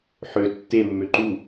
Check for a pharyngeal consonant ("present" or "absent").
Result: present